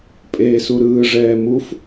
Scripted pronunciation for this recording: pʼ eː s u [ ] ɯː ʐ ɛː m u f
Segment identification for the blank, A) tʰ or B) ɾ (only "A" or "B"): B